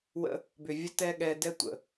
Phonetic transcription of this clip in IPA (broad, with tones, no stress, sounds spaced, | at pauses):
w ə̰˧ | b ʏ˨ vʲ ə˧ t ɛ˧ ɠ ɛ˧ d ɛ˦ tʷ ə̰˨